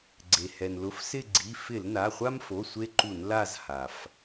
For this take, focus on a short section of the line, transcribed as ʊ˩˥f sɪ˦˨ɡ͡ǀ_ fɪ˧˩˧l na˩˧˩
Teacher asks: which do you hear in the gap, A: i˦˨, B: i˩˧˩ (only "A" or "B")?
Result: B